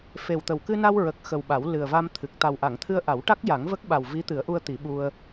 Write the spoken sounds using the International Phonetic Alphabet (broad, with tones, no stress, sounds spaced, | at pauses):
f e˨˩ w t̪ ə˨˩ w k ɨ˧ n a˧ w ɹ ə˨˩ k̚ x ə˨˩ w ɓ a˨˩˦ w l ɨ˨˩ ə̯ v a˧ m t̪ʰ ɨ˨˩ k̚ t̪ a˨˩ w ʔ a˨˩˨ ŋ t̪ʰ ɨ˧ ə̯ ʔ a˨˩˦ w ʈ a˦˥ k̚ j a˨˩˦ ŋ v ə˦˥ k̚ ɓ a˨˩ w v i˧˥ t̪ ɨ˨˩˦ ə̯ ʔ u˧ ə̯ t̪ i˨˩˦ ɓ u˧ ə̯